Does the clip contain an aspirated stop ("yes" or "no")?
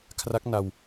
yes